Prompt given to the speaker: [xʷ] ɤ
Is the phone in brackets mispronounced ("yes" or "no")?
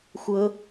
no